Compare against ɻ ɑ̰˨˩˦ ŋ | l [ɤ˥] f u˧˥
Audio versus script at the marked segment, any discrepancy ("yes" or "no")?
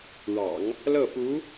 yes